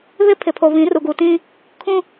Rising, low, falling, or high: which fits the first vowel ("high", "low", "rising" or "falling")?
high